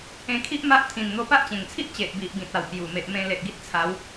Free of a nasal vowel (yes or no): no